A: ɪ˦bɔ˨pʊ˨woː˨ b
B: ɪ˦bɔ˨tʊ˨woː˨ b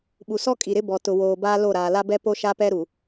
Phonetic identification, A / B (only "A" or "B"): B